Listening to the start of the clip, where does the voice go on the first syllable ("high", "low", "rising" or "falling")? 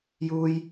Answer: high